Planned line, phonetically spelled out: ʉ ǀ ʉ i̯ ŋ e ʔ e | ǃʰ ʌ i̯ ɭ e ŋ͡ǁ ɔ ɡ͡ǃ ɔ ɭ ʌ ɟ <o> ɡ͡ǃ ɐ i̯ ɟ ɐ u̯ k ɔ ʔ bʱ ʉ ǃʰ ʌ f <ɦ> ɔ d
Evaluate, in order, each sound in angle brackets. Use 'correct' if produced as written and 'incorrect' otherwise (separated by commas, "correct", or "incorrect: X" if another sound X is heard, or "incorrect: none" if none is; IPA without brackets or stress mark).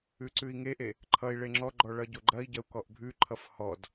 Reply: correct, incorrect: h